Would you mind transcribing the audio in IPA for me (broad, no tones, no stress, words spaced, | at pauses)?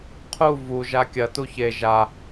qʰu vu ʒakʲɐ tuçe ʒa